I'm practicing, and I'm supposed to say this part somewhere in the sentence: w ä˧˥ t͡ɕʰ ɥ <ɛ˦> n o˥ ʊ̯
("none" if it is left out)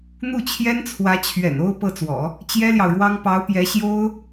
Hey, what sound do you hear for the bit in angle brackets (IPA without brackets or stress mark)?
ɛ̰˨˩